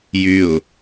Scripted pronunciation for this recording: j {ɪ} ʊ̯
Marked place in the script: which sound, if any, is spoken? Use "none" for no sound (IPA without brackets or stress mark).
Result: y